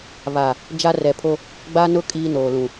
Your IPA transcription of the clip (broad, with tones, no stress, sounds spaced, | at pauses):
β a˨ | d͡ʒ a˦ r ɛ˨ pʰ o˦ | ɡ͡b a˦ n ʊ˦ kʼ iː˦ n oː˨ l ũ˨